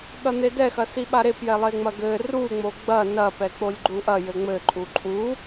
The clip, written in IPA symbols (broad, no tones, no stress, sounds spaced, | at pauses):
ɠ ɐ n̪ e d ɛ x ɐ s i ɓ a ɾ e p j ɛ lˠ e ŋ͡m ɐ ɡ ɘ r u ŋ͡m o ɡ͡b ɐ n ɐ p ɛ k͡p o lʲ ɡ͡ǃ u ʔ ɐ j ɘ ŋ͡m ɘ ǃʼ u ǃʼ u